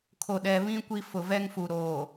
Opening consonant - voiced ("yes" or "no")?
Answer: no